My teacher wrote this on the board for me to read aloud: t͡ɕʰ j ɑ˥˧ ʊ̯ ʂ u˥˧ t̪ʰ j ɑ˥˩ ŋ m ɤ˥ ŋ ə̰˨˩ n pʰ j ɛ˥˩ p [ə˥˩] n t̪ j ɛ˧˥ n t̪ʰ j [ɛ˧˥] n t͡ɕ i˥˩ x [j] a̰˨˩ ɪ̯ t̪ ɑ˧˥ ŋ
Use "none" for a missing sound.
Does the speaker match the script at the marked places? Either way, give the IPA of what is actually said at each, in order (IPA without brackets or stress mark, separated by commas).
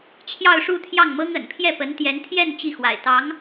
ə˧˥, ɛ˥˧, w